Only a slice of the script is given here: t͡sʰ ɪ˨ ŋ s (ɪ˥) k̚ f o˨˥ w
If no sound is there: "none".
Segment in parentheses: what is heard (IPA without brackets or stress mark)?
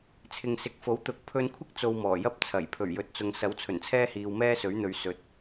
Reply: ɪ˨